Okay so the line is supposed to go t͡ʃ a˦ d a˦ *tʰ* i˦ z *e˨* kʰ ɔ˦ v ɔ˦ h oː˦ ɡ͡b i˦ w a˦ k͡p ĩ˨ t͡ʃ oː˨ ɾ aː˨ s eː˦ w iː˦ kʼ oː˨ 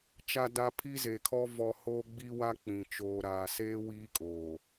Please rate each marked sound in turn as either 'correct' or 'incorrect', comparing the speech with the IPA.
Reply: incorrect: pʰ, correct

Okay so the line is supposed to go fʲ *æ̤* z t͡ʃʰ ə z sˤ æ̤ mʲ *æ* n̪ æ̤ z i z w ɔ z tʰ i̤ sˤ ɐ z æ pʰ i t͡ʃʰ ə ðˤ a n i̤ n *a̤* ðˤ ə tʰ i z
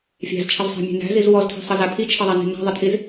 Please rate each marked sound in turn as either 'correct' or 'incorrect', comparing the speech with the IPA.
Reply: correct, incorrect: æ̤, correct

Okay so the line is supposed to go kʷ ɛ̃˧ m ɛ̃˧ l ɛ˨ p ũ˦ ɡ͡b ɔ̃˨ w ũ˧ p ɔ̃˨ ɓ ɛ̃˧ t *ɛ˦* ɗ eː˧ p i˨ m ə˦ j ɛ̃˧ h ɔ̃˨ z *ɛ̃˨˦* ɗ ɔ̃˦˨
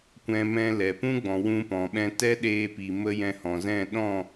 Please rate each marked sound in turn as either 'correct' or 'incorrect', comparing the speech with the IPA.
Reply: correct, incorrect: ɛ̃˦˨

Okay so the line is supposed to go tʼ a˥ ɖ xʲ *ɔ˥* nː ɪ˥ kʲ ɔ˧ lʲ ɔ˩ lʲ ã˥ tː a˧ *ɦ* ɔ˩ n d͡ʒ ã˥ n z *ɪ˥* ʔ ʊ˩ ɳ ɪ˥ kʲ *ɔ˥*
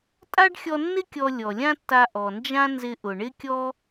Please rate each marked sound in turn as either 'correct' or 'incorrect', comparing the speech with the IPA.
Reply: incorrect: ɔ˧, incorrect: ʔ, incorrect: ɪ˧, correct

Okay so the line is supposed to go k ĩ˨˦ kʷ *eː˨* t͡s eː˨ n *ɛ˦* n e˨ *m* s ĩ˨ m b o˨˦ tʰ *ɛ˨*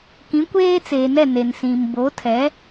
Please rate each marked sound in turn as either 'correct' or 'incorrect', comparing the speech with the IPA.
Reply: incorrect: eː˦, incorrect: ɛ˦˨, incorrect: n, incorrect: ɛ˨˦

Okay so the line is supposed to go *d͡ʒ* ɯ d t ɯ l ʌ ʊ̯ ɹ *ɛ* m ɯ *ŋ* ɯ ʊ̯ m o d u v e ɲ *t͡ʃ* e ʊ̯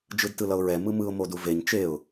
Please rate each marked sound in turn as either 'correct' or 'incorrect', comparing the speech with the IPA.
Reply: correct, correct, incorrect: m, correct

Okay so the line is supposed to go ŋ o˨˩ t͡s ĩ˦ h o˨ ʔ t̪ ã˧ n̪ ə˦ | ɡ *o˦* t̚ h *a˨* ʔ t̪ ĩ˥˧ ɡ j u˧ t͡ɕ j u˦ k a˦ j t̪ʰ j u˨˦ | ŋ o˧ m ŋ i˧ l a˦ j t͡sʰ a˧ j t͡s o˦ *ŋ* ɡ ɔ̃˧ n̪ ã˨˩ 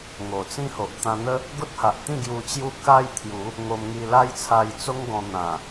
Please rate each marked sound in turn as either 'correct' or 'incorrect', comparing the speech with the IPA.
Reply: correct, correct, correct

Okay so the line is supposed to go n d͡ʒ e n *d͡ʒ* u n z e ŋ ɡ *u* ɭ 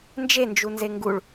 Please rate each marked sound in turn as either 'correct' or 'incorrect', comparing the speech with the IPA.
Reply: correct, correct

